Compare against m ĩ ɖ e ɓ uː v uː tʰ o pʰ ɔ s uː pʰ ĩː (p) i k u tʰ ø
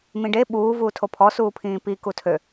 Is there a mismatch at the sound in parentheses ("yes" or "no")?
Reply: no